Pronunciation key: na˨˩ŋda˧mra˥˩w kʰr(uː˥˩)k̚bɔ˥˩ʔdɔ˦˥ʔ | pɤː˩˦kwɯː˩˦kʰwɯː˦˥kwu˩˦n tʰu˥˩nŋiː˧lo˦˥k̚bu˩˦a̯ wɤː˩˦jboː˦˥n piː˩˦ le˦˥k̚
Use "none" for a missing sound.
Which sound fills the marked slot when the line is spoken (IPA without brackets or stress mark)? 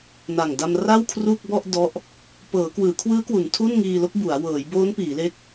uː˥˩